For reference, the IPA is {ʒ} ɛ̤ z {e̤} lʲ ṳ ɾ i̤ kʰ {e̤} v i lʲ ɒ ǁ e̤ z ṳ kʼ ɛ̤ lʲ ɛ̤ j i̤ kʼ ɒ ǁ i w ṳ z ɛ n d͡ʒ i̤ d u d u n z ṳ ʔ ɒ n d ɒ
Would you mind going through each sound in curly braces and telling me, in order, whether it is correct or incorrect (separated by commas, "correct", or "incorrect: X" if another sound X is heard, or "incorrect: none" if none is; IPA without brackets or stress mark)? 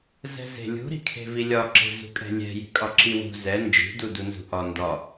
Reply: incorrect: z, correct, correct